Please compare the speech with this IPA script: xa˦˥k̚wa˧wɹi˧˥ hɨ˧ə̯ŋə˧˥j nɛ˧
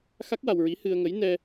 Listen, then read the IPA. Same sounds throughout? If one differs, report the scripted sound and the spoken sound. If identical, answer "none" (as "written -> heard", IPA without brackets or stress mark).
none